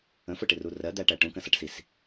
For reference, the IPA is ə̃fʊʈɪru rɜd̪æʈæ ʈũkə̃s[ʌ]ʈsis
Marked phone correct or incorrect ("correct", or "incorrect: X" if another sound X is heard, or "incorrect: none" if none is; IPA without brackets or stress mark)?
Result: correct